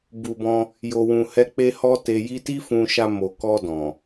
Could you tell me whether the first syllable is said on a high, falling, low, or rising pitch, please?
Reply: low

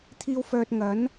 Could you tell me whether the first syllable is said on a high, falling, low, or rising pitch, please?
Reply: high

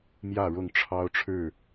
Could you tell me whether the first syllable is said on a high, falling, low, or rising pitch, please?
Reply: falling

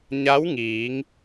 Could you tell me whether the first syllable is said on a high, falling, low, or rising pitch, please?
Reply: rising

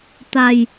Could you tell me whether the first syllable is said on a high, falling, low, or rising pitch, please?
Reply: low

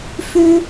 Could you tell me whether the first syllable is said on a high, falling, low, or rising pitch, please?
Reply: high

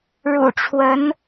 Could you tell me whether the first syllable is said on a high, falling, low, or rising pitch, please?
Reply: low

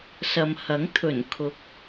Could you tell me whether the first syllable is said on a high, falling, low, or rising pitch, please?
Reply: low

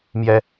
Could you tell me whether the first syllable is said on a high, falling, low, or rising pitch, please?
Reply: high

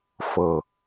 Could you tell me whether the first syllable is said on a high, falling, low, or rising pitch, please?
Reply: low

